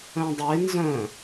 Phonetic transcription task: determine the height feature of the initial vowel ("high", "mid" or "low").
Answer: mid